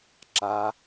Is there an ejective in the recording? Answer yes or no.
no